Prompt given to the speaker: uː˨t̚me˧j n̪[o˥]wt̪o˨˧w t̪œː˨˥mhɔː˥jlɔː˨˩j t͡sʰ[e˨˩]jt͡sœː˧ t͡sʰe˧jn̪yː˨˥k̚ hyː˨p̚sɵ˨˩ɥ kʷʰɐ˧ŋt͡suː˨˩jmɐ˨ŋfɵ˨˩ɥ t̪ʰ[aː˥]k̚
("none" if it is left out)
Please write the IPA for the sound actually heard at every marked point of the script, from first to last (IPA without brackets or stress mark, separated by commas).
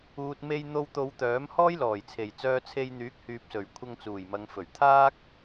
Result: o˧, e˨˩, aː˥